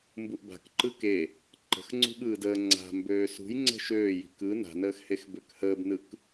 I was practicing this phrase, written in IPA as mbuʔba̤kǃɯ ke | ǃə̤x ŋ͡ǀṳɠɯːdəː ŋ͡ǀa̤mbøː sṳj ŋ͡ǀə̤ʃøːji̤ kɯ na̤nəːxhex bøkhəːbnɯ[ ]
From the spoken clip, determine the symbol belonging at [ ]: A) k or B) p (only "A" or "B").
A